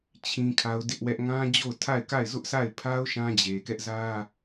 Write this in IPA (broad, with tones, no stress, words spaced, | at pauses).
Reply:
t͡ɕʰĩ˦kʰa˦ʊ̯dɪ˦ʔwɛ˦ʔ ŋã˦d͡ʑo˦˨ʊ̯tʰa˦˨ɪ̯ka˦˨ɪ̯ zʊ˦ʔsa˦˨ɪ̯ pʰa˦ʊ̯ ʃã˦d͡ʑe˨kɛ˦ʔ zä˦